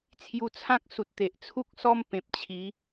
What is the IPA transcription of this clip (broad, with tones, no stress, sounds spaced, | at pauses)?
t͡sʰ j u˧ t͡sʰ ã˦ k̚ s u˨ t̚ t̪ e˨ ʔ t͡sʰ u˦ k̚ s ɔ˦ m p ẽ˨ p̚ t͡ɕʰ i˨˦